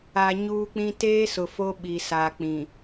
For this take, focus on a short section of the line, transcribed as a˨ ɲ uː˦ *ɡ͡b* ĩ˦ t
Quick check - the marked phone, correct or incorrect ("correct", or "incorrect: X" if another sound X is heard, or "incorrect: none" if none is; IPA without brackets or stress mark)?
incorrect: k͡p